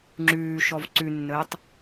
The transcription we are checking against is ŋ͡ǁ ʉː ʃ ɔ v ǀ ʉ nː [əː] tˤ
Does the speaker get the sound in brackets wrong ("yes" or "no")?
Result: no